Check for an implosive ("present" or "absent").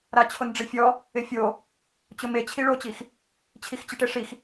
absent